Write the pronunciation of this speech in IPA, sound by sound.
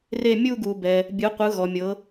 re˥˧ mʲu˥˧ɡu˨bɛ˨ | bʲɯ˨˦qʷɯ˨˦ ɣɔ˨mʲɤ˨˦

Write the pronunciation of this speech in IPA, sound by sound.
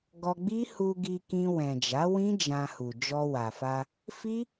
ɡɔ˧ɡ͡bi˦ hu˧ɡi˧kĩ˧ wɛ̃˨d͡ʒa˨˦wĩ˦ d͡ʒã˧hu˨ d͡ʒɔ˧wa˨fa˧ | fi˦

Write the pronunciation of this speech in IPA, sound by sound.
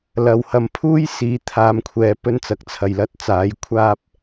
lɐ˨whɐ˨m pʰuː˥jsiː˨˧t̪ʰaː˨˧mkʷʰɛː˨ pɵ˧nt͡sɐ˨˥k̚t͡sʰɐ˨j lɐ˧t̚t͡saː˨˧j kʷʰaː˥p̚

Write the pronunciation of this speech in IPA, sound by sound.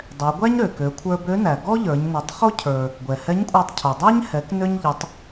dˤɛ˩˧ɡʷæ˥ɲɾø˩kø˩˧ kʷʰə˞˧bø˧˥næ˩ ɡɔ˥ʎə˞˩˧ɲnə˩˧tˤ χo˥cʰə˞˩ | ɡʷɛ˩hɛ˧˥ɲkʷʼə˞˧tˤ cʰo˩dˤæ˥ɲ hɛ˩˧knø˧ɲ ʎɪ˩˧tˤ

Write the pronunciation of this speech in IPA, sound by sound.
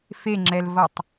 feŋ͡ǁɛlvʌtˤ

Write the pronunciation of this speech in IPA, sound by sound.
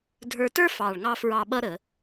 dʱə˞˧tə˞˥ fɑ˨˩ɭŋɑ˧ fɹɑ˧ ɓʌ˥ ɾə˧˩˧

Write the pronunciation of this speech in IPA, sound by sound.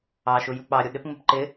ɑʃu juk͡pɑɾʲu ɗɪpŋ͡mɪp ǃɪ

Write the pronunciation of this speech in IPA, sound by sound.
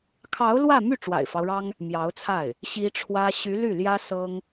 kʰɑ˧˥ʊ̯ lwä˥˧my˥˩ ʈ͡ʂwa̰˨˩ɪ̯fɑ˦ʊ̯ɻɑ˥ŋ | mjɑ˧˥ʊ̯t͡sʰa˥˩ɪ̯ | ɕi˥ʈ͡ʂʰwä˥ ɕy˧˥ ly˥˩ljä˥ sɤ˥ŋ

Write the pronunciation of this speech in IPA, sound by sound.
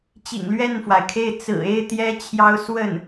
t͡ɕḭ˨˩ŋ lɥɛ˥˩nfwa˩ɪ̯kʰe˥˩ɪ̯ t͡sɹ̩˨˩e˥˩ɪ̯ t̪jɛ˥t͡ɕʰjɑ˥ʊ̯ swə˥˩n

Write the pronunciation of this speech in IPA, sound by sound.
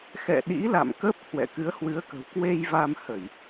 xɛ̰˧˨ɗḭ˧˥ la̰˧˨mkə˦˥p̚hwɛ̰˧˨ kɨ˨˦ə̯hwɨ˨˦ə̯kə̤˨˩w kwe˧jva˧mhə˧˩˨j

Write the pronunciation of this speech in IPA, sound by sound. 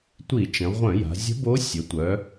tʷi˧˩˧t͡ʃə̃˩˧ʁʷœ̃˧˩˧ja̤˩˧ zʲə̤˧˥bo˧˥ sʲo˩˧tʷœ˩˧

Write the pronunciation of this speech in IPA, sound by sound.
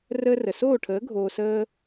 rəː˦rə˨ soː˦˨ʈʰəː˨˦ ɡʱoː˧səː˦

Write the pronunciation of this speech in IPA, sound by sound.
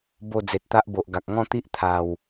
bo˥˧ d͡ze˨t̚t̪a˦ʔbo˨ʔ ɡa˨k̚ ŋɔ̃˥˧t̪i˦ʔ t̪ʰa˨˩w

